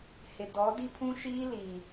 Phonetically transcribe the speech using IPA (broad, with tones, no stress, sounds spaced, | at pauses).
h ɪ˨ d ɔ˨˦ d i˦ pʰ ũ˦ ʃ iː˦ l iː˨